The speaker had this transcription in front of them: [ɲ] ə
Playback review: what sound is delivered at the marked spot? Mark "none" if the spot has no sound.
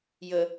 j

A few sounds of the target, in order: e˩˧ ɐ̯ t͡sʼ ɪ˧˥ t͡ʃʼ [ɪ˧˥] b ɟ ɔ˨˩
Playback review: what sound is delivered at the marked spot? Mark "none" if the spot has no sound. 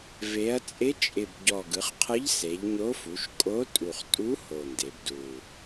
ɪ˨˩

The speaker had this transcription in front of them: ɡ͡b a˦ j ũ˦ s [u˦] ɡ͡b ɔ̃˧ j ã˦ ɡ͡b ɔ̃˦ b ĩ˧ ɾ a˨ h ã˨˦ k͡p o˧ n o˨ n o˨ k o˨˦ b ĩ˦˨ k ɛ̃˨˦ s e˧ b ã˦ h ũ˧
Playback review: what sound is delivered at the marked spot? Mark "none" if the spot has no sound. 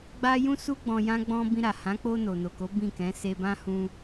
u˦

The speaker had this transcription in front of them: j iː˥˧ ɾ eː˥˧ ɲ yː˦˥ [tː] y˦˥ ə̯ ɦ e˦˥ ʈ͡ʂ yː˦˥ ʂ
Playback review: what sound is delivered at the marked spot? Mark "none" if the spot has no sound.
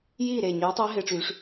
tˤ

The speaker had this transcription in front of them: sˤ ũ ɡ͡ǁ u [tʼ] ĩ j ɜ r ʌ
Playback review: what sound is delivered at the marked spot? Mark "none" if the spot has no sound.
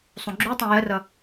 tˤ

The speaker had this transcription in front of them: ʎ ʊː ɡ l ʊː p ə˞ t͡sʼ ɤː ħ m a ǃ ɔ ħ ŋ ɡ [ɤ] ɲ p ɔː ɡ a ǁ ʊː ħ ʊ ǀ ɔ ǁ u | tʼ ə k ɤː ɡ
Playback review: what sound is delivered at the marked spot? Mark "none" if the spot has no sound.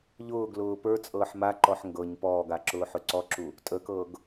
ɤ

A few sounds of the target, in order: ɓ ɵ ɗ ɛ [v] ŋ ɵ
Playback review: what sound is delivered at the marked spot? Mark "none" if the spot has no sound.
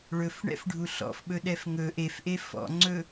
f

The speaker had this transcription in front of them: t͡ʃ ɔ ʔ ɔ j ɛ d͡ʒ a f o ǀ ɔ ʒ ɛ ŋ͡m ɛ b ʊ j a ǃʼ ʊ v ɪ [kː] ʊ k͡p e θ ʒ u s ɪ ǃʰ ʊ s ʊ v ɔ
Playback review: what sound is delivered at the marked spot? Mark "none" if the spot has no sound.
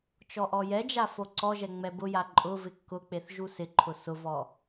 kː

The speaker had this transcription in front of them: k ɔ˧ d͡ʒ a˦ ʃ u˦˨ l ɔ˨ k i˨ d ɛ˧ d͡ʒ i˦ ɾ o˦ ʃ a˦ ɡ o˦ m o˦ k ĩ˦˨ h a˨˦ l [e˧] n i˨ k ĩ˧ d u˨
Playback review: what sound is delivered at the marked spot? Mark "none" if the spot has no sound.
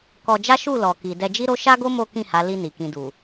i˧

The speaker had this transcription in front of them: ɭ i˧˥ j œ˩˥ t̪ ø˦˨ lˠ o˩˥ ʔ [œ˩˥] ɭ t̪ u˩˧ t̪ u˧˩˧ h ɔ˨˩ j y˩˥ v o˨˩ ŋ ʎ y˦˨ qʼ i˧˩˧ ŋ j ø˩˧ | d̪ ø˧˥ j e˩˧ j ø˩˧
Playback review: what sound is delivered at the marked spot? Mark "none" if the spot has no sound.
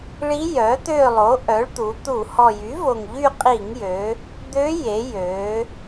œ˩˥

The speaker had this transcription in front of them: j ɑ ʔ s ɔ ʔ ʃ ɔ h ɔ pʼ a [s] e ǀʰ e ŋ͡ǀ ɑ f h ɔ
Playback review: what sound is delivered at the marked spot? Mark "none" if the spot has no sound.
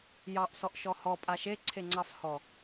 ʃ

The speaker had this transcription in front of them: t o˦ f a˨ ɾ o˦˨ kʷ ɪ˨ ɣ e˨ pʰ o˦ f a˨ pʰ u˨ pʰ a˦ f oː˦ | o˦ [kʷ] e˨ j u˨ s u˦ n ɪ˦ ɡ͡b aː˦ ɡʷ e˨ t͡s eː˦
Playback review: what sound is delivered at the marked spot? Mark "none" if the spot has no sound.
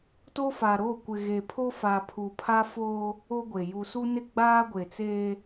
ɡʷ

